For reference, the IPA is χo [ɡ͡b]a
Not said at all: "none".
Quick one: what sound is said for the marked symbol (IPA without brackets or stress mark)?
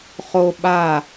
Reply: ɓ